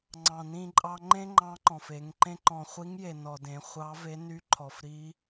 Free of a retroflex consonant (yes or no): yes